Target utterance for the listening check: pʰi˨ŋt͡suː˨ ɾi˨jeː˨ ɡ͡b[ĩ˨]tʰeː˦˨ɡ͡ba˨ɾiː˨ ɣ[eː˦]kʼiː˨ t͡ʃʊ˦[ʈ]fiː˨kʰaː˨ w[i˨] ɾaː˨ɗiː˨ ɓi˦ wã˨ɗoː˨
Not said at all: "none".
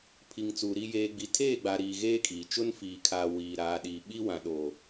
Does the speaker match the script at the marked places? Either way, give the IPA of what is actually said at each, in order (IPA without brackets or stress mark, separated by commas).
i˨, eː˦, n, iː˨